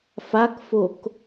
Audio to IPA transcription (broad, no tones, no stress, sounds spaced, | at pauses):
f a k f o k